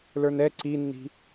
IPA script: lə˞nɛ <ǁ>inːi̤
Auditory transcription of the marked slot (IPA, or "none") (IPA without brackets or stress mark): ǀ